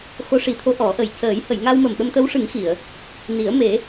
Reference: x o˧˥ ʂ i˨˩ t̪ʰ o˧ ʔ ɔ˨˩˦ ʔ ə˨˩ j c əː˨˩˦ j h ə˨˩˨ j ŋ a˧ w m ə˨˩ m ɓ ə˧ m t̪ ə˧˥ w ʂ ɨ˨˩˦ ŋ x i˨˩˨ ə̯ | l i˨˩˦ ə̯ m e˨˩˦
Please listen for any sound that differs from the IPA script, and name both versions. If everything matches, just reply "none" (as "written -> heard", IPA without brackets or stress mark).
l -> n